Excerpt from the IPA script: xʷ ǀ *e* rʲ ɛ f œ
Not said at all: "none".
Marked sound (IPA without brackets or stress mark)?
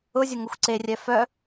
e